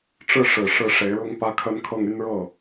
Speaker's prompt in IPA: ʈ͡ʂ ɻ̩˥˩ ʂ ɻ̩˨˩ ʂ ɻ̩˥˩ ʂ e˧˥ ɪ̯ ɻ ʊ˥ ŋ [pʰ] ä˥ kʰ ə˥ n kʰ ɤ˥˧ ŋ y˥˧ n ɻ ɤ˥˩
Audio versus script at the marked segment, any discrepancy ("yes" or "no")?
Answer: yes